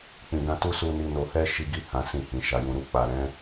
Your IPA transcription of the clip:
k͡p ĩ˨ ɡ ã˧ t u˦ s u˧ n i˧ n o˧ h ɛ˦ ʃ i˧ ɡ i˦ h ã˧ s ĩ˧ h ĩ˨ ʃ a˨ j ũ˨ ɾ u˧ k͡p a˨ ɾ ɛ̃˨˦

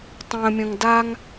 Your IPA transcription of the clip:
tˤ ə̃ː mʲ ə̃ ŋ d a ŋ

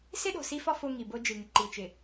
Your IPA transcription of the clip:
s ɪ˦ ɗ o̤˨ s i˦ f ɒ˦ f o˦ ŋ i˨ b o˦ d͡ʒ ɨ˨ ŋ ɪ˨ ǃ i˨ t͡ʃ ɪ˨

